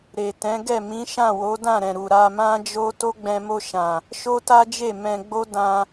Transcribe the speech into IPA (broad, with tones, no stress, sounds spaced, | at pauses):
ɾ e˨ t ɛ̃˨˦ ɡ ɛ˦˨ m ĩ˨˦ ʃ ã˦˨ w o˨˦ d ã˦˨ ɾ ɛ̃˨ ɾ u˨ ɾ a˧ m ã˦ d͡ʒ o˦ t o˦ ɡ͡b ɛ̃˧ m o˧ ʃ ã˨ | ʃ o˦ t a˦ d͡ʒ e˦˨ m ɛ̃˧ ɡ͡b o˦ d ã˧